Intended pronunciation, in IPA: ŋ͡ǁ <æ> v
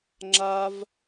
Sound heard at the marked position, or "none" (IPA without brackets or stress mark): a